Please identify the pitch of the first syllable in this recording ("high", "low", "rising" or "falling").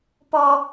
high